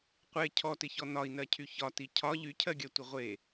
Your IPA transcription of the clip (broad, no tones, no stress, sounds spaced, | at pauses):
qʷ e cʰ ɔ t ɪ ç ɔ n ɒ i̯ n ɜ cʰ y ç ɒ t i cʰ ɒ ʎ y cʰ ɜ ɡʲ ɜ tʷ ɪ ʁʷ e